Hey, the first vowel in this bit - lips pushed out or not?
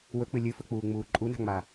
yes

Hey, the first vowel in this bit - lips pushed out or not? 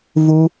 yes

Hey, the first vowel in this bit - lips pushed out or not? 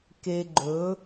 no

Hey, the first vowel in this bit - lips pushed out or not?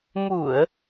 yes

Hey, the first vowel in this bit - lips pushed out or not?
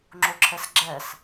yes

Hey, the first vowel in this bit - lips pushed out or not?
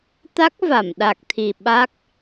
no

